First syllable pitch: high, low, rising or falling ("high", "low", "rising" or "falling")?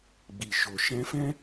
low